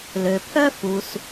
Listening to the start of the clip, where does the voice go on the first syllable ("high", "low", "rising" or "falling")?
low